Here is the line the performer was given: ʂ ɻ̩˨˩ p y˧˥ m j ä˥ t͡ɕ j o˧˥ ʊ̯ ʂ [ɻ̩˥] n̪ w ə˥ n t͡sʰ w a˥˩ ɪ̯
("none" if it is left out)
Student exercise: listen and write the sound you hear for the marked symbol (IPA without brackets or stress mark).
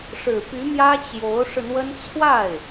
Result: ɻ̩˧